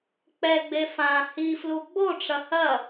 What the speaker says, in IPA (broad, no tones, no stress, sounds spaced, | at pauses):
k͡p ɛ ɡ͡b e f ã h i f l u ɡ͡b o ʈ͡ʂ ɐ h ɐ